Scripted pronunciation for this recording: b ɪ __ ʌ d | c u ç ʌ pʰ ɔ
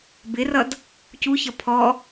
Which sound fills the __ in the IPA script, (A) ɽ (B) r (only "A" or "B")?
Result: B